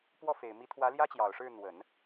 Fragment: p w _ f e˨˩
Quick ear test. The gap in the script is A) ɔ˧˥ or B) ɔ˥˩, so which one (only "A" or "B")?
B